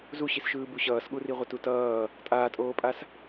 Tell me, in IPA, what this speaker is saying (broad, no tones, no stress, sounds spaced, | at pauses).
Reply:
z u ɕ i s ʃ ɯː b u ɕ ʌː s ɠ u r i ʁʷ ʌ t u t ʌː | tʼ aː tʼ oː pʼ a s